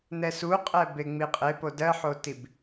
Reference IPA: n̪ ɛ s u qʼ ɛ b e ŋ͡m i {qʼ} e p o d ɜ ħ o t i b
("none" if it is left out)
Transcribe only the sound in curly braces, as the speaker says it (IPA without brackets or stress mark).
qʼ